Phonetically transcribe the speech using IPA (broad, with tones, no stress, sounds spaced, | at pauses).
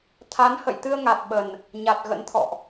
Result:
t̪ʰ a˨˦ n h ə̰˧˨ j t̪ ɨ˧ ə̯ ŋ a˨˩ t̚ ɓ ə˨˩ n | ɲ a˨˩ t̚ ɣ ə̰˧˥ n t̪ʰ ɔ̰˧˨ ʔ